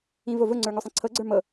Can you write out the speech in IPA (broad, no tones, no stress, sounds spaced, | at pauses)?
ĩ v o v ʊ ŋ͡ǀ ə˞ ŋ o sˤ ĩ ǀʰ ɤ ɡ͡ǀ ə˞ m ɤ